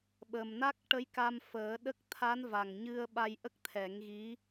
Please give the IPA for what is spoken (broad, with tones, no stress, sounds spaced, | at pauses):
ɓ ə˨˩ m n a˦˥ k̚ ʈ ə˧˥ j k a˧ m f əː˨˩˦ ɗ ə˦˥ k̚ t̪ʰ a˧˥ n v a˨˩ ŋ ɲ ɨ˧ ə̯ ɓ a˧ j ʔ ə˦˥ k̚ t̪ʰ ɛ˨˩˦ ŋ ɣ i˧˥